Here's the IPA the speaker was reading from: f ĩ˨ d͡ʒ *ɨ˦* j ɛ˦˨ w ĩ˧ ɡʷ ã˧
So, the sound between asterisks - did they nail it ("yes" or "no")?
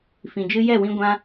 yes